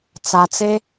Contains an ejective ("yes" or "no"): no